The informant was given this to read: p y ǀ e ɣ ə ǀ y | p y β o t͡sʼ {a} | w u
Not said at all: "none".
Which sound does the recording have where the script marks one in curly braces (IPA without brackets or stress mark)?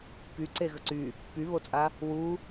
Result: a